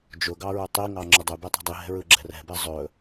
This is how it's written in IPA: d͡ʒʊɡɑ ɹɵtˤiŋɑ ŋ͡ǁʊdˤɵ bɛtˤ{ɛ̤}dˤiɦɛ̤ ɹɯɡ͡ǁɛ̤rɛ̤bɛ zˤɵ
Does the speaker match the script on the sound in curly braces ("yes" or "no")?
yes